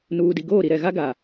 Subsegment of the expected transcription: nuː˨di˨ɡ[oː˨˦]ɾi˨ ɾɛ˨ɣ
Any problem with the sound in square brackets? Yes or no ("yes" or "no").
yes